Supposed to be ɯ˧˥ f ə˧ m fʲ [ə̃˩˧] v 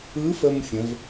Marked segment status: correct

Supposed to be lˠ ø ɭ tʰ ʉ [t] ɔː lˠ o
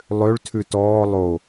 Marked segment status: correct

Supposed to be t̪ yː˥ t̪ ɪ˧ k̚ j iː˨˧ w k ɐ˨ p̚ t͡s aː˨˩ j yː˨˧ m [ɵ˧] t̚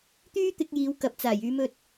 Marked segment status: correct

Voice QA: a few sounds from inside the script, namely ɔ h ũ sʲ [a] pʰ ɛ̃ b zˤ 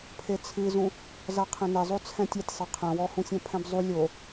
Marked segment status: incorrect: ã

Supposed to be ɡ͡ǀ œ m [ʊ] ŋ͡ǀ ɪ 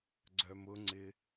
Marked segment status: correct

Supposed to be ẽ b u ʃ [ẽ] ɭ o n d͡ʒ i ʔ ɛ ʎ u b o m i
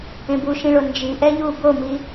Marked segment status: incorrect: ĩ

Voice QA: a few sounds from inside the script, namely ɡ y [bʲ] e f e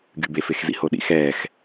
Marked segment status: incorrect: b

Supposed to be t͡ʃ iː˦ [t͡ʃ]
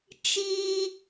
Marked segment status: incorrect: none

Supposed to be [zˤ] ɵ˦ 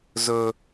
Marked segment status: incorrect: z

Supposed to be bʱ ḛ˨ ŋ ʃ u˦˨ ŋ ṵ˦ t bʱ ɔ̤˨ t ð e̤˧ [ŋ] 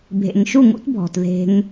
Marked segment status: correct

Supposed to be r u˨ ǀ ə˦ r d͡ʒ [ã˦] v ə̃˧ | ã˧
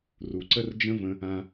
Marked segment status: incorrect: ə̃˦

